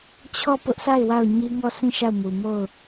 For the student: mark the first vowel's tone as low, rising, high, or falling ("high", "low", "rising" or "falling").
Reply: falling